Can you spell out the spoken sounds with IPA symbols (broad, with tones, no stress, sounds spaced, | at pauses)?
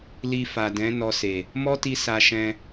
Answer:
l i˧ f a˨ d ɛ̃˨˦ n ɔ˧ s e˨ | m ɔ˦ t i˧ s a˧ ʃ ɛ̃˧